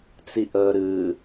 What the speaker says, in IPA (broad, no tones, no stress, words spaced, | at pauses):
t͡siʔəːɾɨː